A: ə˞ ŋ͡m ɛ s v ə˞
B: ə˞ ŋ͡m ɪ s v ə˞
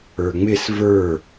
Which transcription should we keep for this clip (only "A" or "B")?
B